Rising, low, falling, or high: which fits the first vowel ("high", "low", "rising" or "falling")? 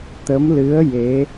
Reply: rising